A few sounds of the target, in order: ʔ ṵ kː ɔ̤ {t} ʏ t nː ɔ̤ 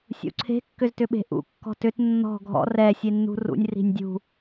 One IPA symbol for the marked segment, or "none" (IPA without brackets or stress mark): t